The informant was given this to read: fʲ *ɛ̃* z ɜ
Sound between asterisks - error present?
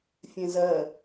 no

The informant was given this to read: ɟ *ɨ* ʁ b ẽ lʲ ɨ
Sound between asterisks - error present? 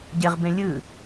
yes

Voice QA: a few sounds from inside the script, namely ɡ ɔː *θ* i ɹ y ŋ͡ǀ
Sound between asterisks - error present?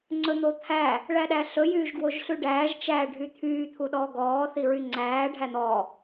no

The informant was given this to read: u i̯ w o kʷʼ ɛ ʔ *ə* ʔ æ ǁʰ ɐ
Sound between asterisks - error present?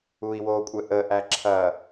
no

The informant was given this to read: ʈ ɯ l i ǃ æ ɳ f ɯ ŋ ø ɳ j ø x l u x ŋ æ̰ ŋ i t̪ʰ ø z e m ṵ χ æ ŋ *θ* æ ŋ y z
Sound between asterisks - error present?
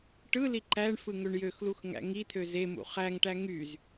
yes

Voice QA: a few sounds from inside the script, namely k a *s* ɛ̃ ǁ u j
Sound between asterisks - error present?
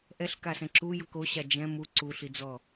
no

